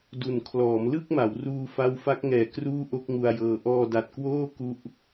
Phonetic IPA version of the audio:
d u˨˩ n kʰ l ɔː˩˦ m l ɯ˥˩ k̚ m a˩˦ w r uː˧ f a˦˥ w f a˦˥ k̚ ŋ ɛː˨˩ k r uː˥˩ ʔ o˥˩ k̚ ŋ u˧ a̯ j ɤː˧ ʔ ɔː˧ d a˨˩ t̚ k w oː˥˩ k u˦˥ ʔ

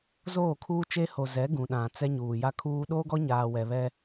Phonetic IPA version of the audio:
z oː˦˨ kʰ uː˦ t͡ʃ e˦ h o˨ z ɛ˨˦ ɡ ũ˨ ɗ ã˨ t͡s ɛ˦ ɲ uː˨ j a˦ kʰ uː˦ ɗ oː˦ ɡ ɔ˦ ɲ aː˨ w ɛ˨ β ɛ˦

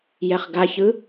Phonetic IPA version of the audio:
j ɛ χ ɡ a ç ɯ

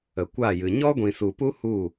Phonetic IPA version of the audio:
ə˨ kʷ a˦˨ j ɨ˨ ɲ ɔ˦ ɡʷ ĩ˨ s u˨ p u˦ h u˦˨

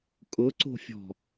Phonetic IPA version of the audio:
kʼ ʊ ǀ o̤ fʲ ɔ̤

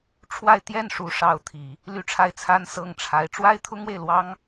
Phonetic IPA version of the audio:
ʈ͡ʂʰ w a˥˧ ɪ̯ t̪ j ɛ˥˩ n ʂ u˧˥ ʂ ɑ˧˥ ʊ̯ t̪ʰ i˨˩˦ | l y˥˧ ʈ͡ʂʰ a˥˩ ɪ̯ t͡sʰ a˥ n s ɤ˥˩ ŋ ʈ͡ʂʰ a˧˥ ɪ̯ ʈ͡ʂ w a˥ ɪ̯ t̪ʰ ʊ˥ ŋ w e˨ ɪ̯ l w ɑ˥ ŋ

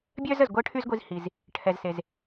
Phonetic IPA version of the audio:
bʲ œː˥ z ə˩ z ɡʷ əː˥ ʈʰ y˥ z ɡʷ i˧ z h i˩ z | ʈʰ ɛ˩ z s e˩ z

